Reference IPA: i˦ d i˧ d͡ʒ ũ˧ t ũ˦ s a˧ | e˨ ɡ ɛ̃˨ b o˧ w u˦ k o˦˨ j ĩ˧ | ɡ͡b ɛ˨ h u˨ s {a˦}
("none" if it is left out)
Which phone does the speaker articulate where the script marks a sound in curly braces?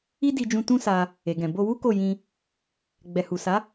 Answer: a˨˦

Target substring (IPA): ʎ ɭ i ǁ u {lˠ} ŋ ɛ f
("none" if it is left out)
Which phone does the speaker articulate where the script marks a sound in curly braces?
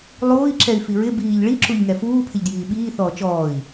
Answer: ʎ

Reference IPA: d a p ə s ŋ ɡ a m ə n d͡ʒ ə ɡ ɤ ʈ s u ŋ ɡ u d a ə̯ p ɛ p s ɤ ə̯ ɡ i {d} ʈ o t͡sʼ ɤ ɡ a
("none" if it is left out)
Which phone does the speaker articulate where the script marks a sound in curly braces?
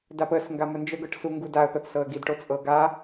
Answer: d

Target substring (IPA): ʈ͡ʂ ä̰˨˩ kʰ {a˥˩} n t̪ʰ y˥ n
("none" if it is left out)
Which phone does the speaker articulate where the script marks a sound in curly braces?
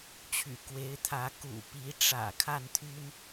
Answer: a˥˩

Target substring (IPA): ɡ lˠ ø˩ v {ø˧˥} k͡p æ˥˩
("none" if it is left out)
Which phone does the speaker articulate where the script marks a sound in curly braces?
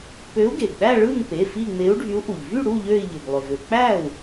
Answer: ø˩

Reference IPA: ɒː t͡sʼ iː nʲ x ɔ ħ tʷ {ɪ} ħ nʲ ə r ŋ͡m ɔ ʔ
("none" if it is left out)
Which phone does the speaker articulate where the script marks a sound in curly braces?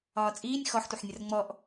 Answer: ə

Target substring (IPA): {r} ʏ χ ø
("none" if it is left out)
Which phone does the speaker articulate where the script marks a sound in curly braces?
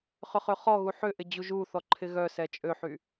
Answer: χ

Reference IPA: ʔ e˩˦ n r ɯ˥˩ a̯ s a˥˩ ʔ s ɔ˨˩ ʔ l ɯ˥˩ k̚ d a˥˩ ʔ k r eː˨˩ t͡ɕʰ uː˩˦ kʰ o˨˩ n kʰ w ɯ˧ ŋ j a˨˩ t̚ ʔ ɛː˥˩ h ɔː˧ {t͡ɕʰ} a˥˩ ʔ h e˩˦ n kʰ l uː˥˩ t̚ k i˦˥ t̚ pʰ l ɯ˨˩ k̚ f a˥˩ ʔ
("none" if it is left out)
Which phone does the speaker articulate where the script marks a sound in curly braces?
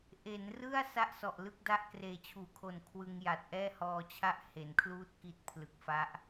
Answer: t͡ɕʰ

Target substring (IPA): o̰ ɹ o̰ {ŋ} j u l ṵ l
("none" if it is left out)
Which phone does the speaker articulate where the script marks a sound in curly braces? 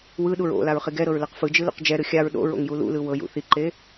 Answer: ŋ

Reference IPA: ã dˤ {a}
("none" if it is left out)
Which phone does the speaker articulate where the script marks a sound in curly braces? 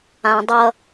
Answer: ʌ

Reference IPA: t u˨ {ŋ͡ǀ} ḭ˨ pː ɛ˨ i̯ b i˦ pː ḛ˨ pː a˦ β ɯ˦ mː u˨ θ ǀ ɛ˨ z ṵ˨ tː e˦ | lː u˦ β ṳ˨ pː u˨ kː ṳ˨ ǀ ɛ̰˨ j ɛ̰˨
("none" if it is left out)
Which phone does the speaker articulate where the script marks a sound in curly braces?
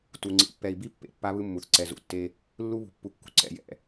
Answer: ŋ͡ǀ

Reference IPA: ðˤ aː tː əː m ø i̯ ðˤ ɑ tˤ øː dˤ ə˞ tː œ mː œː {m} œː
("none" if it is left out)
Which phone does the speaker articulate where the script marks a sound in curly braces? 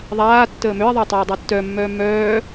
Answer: m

